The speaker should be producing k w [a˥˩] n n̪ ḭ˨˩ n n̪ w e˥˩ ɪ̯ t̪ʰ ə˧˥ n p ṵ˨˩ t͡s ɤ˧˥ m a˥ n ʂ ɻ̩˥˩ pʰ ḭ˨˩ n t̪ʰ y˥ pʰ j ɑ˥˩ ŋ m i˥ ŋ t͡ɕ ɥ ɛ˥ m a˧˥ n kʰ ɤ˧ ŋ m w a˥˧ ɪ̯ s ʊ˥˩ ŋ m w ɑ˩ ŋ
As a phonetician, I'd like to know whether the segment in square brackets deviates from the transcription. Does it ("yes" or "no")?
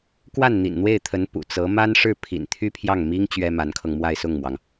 no